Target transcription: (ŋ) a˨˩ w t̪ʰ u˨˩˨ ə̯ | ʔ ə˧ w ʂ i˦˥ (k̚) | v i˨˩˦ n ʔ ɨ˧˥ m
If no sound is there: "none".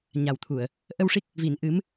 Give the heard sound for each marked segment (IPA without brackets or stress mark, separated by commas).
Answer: ɲ, k̚